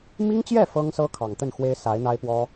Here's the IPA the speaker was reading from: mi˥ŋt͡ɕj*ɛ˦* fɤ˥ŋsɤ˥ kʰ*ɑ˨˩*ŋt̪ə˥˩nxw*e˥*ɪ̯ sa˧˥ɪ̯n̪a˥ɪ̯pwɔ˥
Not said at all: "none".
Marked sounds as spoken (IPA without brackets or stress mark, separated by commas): ɛ˥˩, ɑ˨˩, e˥